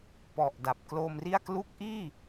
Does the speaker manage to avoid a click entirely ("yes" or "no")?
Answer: yes